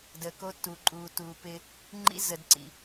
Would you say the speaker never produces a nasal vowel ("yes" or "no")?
yes